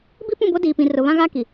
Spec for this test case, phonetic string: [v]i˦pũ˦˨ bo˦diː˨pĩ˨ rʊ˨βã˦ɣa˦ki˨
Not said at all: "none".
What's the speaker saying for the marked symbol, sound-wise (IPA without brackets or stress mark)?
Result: b